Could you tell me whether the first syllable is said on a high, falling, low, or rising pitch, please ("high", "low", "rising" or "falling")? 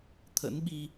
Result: rising